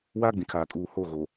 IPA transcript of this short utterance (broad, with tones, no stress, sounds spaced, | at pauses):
w aː˦ ɡ͡b ĩ˨ kʰ aː˨ kʼ uː˨ h oː˦˨ ɣ oː˨